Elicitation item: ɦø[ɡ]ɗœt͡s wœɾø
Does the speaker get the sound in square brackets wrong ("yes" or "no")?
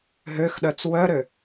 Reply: yes